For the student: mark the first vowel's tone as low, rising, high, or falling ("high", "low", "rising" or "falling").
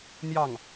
falling